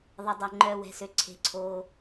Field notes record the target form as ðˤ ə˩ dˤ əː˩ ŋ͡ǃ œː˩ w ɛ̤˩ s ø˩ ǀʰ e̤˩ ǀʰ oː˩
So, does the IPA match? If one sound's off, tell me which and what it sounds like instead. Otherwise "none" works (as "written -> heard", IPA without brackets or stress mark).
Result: none